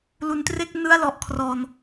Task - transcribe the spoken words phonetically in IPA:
l u˩˦ n t r e˥˩ k̚ n ɯ˥˩ a̯ l ɔ˨˩ ʔ kʰ r ɔː˧ n

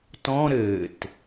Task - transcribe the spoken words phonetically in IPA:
t ɔ̃ ɾ ɘː t

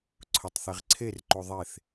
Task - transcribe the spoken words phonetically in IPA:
ǀʰ ʊ tˤ θ e ʁ ǀʰ e r ǃ u ðˤ e θ

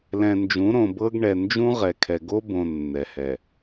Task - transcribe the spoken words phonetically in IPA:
l ɛ̃˨ n d͡ʒ ũ˨˦ ɾ õ˨ b ɤ˦ ɡ ɳ ɛ˨ n d͡ʒ ũ˦ ʁ ɛ˨ kʰ ɛ˨ ɡ o˦ b õ˨ nː ɛ˨ h ɛ˨

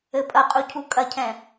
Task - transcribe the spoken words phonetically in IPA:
ɘ pʼ ɐ qʼ u cʰ u kʼ ɐ cʰ ɛ̃

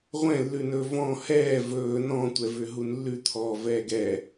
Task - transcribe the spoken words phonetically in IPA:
ʁʷ ɛ̃ lː ʉ n ɵː v ɔ̃ h ɛː v ɵː n ɔ̃ tʷ ɛ v ʏ ɦ u n lː ʉ t̪ʰ ɔ v ɛː ɡ ɛ

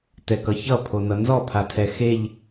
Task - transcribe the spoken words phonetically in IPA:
t ɛ k ʌ ç ʌ pʰ o n ʌ n z ɔ pʰ a tʰ ɛ x e ʎ

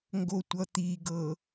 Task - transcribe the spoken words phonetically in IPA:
ŋ ɡ o tʷ ʌ t̪ i ɡ ɤ

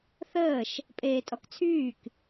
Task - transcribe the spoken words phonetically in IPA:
θ əː ʃ | pʼ eː tʼ ɔ k t͡sʰ yː k

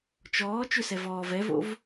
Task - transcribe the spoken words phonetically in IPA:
t͡ʃ ɔː t͡ʃ ʏ s ɛ v ɔː v ɛ v o̰ v

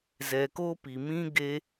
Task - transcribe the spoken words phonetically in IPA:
z ɛ˨ k o˧ p i˨ m ĩ˧ ɡ e˧

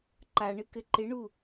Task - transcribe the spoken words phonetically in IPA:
ǃ a ɳ ɨ k ɘ ǃ ɪ ɳ u

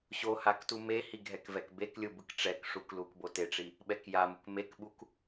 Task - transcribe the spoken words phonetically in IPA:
ɕ o h a k t u m e h i ɡʱ ɛ k v ɛ k b e k lʲ ɯ b ɯ k ʈ͡ʂ ɛ k ʂ u k l u k b o t e ʈ͡ʂ i | ɓ ɛ k j a m u k m e k ɓ u k

